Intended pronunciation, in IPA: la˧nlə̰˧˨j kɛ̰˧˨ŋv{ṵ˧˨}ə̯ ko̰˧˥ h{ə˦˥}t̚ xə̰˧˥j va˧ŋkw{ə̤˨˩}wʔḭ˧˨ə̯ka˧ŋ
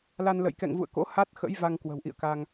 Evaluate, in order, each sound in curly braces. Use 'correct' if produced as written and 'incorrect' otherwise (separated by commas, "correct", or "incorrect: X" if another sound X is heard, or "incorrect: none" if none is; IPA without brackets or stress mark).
correct, incorrect: a˦˥, correct